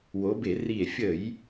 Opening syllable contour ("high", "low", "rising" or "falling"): rising